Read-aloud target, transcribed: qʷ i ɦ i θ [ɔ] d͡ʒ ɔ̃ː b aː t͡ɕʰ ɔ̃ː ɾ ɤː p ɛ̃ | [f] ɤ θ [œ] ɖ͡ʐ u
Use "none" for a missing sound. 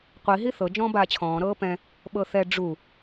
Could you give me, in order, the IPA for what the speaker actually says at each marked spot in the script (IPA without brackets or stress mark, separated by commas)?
ɤ, ɓ, ɛ